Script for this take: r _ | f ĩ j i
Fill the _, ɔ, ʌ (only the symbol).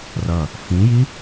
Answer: ʌ